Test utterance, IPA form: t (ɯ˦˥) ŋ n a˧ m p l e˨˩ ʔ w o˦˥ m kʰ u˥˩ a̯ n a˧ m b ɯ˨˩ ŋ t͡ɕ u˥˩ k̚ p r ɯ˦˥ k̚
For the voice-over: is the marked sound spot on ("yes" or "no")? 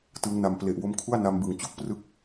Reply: yes